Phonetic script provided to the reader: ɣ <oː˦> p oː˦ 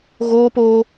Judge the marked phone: correct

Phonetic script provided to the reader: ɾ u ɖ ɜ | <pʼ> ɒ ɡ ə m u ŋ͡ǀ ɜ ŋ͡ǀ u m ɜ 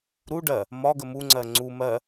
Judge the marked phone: incorrect: m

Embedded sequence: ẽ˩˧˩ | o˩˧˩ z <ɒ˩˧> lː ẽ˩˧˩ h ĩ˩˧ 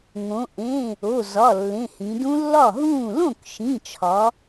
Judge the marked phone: incorrect: ɒ˩˧˩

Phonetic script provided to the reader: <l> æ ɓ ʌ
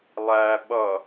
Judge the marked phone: incorrect: lˠ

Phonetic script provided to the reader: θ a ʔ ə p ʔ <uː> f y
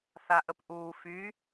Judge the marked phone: correct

